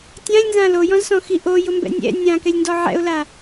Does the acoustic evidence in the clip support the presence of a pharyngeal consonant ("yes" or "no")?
yes